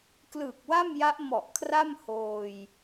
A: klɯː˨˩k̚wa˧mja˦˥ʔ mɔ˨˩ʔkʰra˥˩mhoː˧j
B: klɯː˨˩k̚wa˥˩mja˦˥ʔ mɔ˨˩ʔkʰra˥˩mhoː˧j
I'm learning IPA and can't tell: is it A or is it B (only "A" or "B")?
B